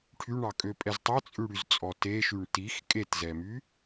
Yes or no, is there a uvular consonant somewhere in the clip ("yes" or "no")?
no